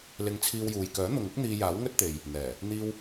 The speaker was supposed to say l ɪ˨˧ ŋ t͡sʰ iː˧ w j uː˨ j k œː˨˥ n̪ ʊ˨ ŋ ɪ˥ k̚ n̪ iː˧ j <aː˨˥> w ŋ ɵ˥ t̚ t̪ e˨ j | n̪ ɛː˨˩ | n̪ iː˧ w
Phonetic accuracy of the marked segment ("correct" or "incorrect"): correct